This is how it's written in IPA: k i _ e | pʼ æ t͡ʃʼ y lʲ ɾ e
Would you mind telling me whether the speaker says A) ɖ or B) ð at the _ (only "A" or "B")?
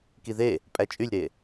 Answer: B